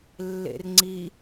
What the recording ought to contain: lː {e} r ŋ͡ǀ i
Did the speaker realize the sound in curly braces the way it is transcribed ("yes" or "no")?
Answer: no